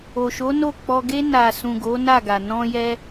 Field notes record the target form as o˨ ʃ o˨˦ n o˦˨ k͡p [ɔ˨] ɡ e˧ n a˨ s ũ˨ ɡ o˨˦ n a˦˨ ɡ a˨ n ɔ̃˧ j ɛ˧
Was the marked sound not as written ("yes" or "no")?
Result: yes